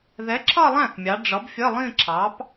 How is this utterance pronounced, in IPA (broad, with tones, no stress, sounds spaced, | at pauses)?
ð ɛ˨˥ ǁʰ ʌ˥˧ lˠ æ̃˥˩ θ mʲ ɑ˩˧ ɖ͡ʐ ʌ˨˥ b fʲ ə˧˥˧ lˠ ĩ˥˧ ǁʰ ɑ˨˥ p